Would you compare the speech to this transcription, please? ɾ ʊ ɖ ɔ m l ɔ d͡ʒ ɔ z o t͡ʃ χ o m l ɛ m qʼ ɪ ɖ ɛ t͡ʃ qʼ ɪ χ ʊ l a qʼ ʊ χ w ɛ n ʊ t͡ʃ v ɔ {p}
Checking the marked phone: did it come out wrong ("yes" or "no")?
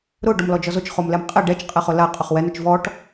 yes